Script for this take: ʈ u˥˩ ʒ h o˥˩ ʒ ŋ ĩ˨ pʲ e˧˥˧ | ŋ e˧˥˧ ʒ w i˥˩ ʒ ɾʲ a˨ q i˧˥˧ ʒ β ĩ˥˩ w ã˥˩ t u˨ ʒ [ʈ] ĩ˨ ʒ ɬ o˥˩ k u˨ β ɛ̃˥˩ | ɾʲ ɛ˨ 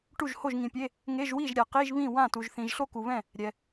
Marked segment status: incorrect: θ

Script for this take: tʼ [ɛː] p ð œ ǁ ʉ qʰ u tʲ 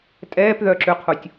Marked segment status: correct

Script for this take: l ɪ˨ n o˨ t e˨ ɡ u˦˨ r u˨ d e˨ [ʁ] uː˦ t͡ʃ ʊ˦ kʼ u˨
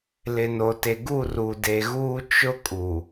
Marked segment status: incorrect: ɣ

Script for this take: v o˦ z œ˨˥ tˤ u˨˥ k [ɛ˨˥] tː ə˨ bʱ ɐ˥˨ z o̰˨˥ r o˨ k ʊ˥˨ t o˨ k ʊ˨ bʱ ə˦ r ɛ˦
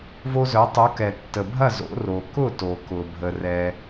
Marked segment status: incorrect: ɛ˨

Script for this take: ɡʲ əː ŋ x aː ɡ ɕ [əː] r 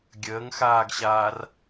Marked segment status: incorrect: aː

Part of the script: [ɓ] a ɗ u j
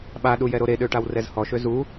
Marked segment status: correct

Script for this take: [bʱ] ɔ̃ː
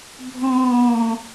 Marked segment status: correct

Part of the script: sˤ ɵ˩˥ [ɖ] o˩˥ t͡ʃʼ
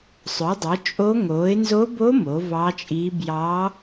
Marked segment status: incorrect: dˤ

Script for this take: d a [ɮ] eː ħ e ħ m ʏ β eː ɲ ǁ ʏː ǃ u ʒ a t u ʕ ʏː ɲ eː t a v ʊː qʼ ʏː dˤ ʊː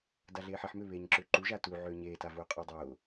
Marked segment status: correct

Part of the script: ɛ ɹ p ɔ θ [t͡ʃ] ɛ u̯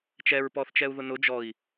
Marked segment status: correct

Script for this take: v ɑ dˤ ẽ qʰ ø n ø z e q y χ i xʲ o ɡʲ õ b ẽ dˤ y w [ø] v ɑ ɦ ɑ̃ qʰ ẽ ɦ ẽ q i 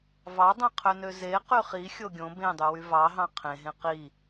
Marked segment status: incorrect: y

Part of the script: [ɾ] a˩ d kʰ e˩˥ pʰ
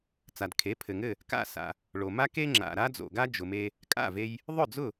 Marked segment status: incorrect: t͡s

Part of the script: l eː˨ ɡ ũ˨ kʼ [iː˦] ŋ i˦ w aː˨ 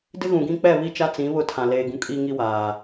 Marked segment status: correct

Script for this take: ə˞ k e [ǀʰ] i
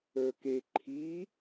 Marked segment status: incorrect: ǃʰ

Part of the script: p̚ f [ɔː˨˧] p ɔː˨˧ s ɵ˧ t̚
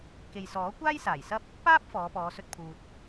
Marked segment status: correct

